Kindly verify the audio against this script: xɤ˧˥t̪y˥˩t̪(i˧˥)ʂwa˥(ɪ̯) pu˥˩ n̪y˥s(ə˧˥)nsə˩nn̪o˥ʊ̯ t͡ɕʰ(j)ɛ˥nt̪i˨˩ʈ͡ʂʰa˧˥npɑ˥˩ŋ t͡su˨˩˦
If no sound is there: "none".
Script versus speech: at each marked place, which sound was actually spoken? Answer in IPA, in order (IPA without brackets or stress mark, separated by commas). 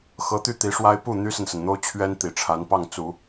i˧˥, ɪ̯, ə˨, ɥ